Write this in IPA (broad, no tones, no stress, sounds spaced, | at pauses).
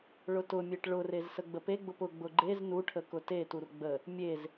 ɭ ʊ t ʊ mʲ e ʈ ɭ ʊ r e z s ə ɡ͡b ə p e ɡ͡b ʊ p ʊ ɡ͡b ʊ ɡ͡ǃ e z n u ʈʰ ə k ʊ t e t u r ɡ͡b ə | mʲ e z